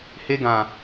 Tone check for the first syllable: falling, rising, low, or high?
high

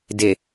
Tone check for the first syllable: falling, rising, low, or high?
low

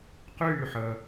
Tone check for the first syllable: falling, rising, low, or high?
falling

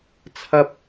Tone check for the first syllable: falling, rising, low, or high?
high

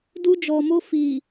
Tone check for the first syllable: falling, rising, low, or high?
high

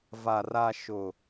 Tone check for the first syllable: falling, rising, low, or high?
low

